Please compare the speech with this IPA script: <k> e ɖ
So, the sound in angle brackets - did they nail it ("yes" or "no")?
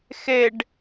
no